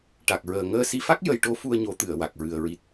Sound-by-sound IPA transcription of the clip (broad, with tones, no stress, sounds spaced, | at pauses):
ʈ a˨˩ k̚ ɹ əː˨˩ ŋ əː˧ s i˧ f a˦˥ k̚ j ə˧ j ʈ o˧˥ f u˧ ə̯ ɲ o˨˩˦ t̪ ɨ˨˩˨ ə̯ w a˨˩ k̚ ɹ ɨ˨˩ ə̯ ɹ i˨˩ t̚